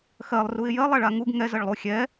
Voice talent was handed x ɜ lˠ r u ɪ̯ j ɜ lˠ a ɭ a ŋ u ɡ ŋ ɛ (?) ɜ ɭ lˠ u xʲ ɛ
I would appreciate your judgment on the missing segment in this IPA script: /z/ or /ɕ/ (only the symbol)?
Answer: z